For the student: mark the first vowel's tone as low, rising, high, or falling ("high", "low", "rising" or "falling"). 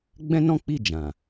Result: high